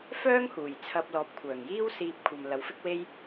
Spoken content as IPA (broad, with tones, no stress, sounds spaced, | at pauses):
f œː˥ ŋ h uː˨˩ j t͡sʰ ɐ˧ p̚ l ɔː˨ p̚ kʷʰ œː˨˩ ŋ j iː˥ w s iː˧ p̚ kʷʰ ɐ˨ m l ɐ˨˥ w f ɪ˥ k̚ w e˥ j